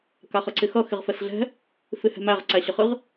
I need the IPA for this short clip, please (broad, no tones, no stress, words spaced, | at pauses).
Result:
kaχʌǀɪxʌ xɪʁfɛsɮɛ̤ | fɪhɛ̤mæʁ ǀæɕəχɨʁ